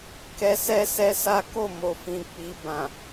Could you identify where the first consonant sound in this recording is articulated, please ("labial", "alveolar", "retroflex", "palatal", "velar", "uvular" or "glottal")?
velar